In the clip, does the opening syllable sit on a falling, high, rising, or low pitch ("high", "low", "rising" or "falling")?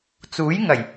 rising